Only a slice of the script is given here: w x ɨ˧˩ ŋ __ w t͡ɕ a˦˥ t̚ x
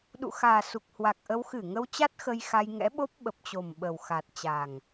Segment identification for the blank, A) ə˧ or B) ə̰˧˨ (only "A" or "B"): A